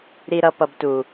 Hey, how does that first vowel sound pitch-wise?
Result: high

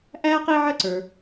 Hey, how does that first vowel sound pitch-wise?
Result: high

